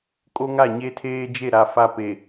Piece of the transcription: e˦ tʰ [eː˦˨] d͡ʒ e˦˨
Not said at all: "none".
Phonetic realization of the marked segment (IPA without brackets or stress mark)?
eː˦